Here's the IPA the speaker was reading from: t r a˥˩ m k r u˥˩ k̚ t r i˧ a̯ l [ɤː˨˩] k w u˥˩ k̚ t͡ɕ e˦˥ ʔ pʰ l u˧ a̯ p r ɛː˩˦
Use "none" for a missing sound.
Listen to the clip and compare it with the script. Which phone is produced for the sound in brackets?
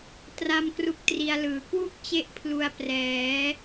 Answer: ɯː˨˩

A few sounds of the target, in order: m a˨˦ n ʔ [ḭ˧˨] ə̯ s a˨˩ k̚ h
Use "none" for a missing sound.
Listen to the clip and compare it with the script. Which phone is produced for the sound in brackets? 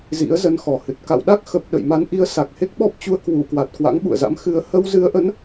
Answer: i˨˦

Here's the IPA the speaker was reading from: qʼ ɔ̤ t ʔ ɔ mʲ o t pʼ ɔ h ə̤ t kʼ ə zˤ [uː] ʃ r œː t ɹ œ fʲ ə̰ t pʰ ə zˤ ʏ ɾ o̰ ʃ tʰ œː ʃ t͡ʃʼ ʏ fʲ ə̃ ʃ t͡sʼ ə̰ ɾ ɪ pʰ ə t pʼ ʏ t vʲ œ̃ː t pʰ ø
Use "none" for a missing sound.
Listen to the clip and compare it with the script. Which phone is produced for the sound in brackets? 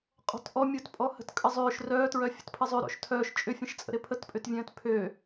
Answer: ʏː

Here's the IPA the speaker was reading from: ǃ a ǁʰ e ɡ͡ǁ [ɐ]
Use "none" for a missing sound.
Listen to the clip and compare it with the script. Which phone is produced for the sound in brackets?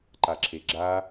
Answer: a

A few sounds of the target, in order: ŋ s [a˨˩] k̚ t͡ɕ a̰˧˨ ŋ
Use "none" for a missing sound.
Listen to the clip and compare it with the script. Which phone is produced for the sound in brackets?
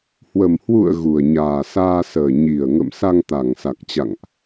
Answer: a˨˩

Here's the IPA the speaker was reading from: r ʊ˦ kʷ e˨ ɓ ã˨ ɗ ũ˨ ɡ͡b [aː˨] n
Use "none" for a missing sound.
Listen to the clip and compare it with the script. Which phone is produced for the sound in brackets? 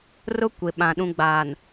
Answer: aː˨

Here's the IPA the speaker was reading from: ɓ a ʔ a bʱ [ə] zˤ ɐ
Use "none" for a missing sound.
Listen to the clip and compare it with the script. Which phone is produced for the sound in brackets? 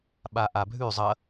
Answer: ʉ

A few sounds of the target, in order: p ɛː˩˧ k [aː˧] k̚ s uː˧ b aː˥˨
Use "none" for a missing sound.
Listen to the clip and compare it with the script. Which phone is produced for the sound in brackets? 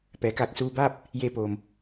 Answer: aː˧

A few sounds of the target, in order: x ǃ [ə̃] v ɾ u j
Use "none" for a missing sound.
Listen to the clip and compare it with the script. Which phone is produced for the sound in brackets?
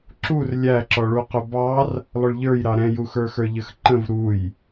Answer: ə̃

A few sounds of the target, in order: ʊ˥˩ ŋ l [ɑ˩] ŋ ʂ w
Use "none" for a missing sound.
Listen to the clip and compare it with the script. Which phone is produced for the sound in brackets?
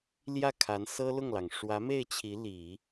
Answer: ɑ˩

